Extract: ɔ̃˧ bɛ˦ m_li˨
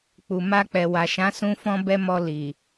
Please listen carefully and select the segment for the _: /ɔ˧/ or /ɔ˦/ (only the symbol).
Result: ɔ˧